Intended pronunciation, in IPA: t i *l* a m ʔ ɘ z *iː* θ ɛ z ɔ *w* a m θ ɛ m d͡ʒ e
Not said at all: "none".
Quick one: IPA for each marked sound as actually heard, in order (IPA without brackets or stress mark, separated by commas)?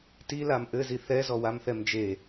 l, i, w